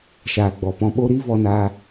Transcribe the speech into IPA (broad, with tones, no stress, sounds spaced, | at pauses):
ʃ aː˨ ɡ͡b ɔ˨ p ɔ̃˧ ɓ o˦ ɾ iː˦ v ɔ˧ n aː˧